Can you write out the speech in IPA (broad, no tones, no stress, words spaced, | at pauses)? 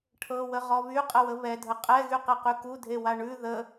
ʈʰɤwəʁɔ βyqʼəwə βɛdʱə qʼɛɣyqeqy kudʱewa ɳʉ ðə